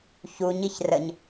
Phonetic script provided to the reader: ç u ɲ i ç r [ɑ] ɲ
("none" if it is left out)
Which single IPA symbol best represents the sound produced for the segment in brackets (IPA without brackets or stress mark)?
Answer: ə